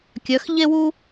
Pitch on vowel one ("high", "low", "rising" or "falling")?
rising